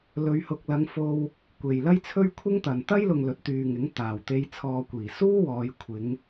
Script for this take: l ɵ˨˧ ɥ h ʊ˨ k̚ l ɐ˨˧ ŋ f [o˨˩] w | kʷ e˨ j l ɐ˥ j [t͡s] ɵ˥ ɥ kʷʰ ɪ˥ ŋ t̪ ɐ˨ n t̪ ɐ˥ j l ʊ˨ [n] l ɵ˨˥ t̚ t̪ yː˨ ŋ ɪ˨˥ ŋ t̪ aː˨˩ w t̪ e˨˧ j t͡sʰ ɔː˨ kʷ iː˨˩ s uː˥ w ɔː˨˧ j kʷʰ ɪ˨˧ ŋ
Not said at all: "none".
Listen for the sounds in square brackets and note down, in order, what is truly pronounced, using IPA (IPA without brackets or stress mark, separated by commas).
o˧, t͡sʰ, ŋ